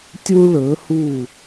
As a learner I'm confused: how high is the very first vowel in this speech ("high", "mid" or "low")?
high